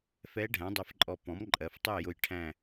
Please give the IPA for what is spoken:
f ɛ˧˥ ɖʱ æ̃˩˥ dˤ ɛ˧ f ǃʼ ɔ˧ p ɔ̃˩˥ m ǃʼ ɜ˩˧ f tˤ ɛ˥˨ j ʊ˧˩ j ʈʰ æ̃˥˨

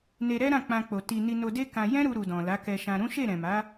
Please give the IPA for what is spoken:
n e˧ ɾ ɛ˦ ɾ ã˦˨ k͡p ã˧ k͡p o˨ t i˧ n i˧ n o˧ d e˦ k ã˧ j ɛ̃˦ ɾ u˧ ɾ u˨ d ɔ̃˨ l a˨˦ k ɛ˧ ʃ ã˧ ɾ ũ˦ ʃ e˦˨ ɾ ɛ̃˨ m a˨˦

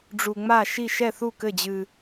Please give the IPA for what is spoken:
ɖ͡ʐ u˧ ŋ͡m a˥˨ ʃ i˥˨ ʃ ɛ˥˨ θ u˥˨ k ɘ˥˨ d͡ʑ ɨ˧

